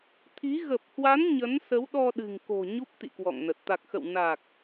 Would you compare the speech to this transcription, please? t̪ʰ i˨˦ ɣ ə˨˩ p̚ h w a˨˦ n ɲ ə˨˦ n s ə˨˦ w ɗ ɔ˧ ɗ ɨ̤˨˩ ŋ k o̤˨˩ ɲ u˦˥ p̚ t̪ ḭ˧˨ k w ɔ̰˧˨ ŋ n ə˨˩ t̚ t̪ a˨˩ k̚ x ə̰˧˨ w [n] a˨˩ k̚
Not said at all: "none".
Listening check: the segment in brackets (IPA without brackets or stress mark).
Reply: n